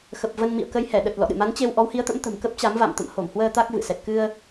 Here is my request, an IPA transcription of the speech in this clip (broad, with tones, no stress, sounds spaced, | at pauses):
x ə˨˩ p̚ v ə˧ n m ḭ˧˨ ə̯ k ə˧ j h ɛ˧˩ ɗ ə˨˩ t̚ l ɔ̰˧˨ ɗ ɨ̰˧˨ m a˨˦ n t͡ɕ e˧ w ʔ ɔ˨˦ w h i˨˦ ə̯ t̪ ə̰˧˥ m t̪ ə̤˨˩ m k ə˦˥ p̚ t͡ɕ a˨˦ m v a̰˧˨ m t̪ ə̰˧˨ m h o˧˩ m h w əː˧ t̪ a˦˥ k̚ v ɨ̰˧˨ s ɛ˨˩ t̚ k ɨ˧ ə̯